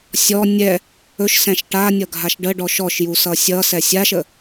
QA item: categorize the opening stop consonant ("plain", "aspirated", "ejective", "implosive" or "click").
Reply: plain